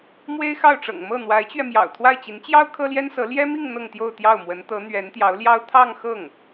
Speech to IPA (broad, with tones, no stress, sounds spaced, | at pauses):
m w e˥ ɪ̯ x ɑ˥˩ ʊ̯ ʈ͡ʂ ɤ̰˨˩ ŋ m ɤ˥˩ n̪ w a˧˥ ɪ̯ t͡ɕ ɥ ɛ˧ m j ɑ̰˨˩ ʊ̯ t̪ʰ w a˥˩ ɪ̯ t͡ɕ i˧˥ n t͡ɕ j ɑ˥ ʊ̯ kʰ ɤ˥ l j ɛ˥ n s ɤ˧˥ l j ɛ˥ m i˥˧ ŋ n̪ ɤ˥˧ ŋ t̪ j o˥˧ ʊ̯ t̪ j ɑ˥˩ ʊ̯ m w ə˧˥ n t̪ ɤ˧˥ n̪ ɥ ɛ˧˥ n t̪ j ɑ˧˥ ʊ̯ l j ɑ˥ ʊ̯ t̪ʰ ɑ˥˧ ŋ x ɤ˥˩ ŋ